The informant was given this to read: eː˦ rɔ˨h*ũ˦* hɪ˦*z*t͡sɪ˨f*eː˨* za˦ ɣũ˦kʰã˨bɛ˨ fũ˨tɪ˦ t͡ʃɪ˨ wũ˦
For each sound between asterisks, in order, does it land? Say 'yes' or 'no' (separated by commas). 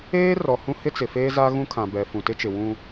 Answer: yes, no, no